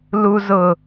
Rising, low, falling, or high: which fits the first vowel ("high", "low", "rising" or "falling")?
low